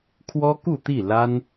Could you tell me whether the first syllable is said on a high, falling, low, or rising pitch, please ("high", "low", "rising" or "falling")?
high